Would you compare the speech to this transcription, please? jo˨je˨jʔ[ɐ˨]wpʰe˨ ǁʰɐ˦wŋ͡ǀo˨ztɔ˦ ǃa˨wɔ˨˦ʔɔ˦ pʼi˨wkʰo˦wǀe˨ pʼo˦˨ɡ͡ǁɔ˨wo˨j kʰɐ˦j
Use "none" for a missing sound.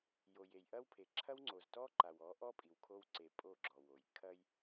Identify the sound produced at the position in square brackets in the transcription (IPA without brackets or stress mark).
ɐ˦